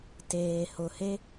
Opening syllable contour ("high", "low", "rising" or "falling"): low